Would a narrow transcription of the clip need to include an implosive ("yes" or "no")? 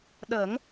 yes